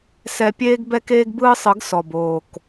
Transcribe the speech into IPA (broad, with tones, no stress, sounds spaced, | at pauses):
s ɛ˧ pʲ eː˦ ɡ b ɛ˦ k eː˦ ɡ b ɯː˦ sˤ ɯ˨˦ ɡ s ɔ˨ b oː˨ k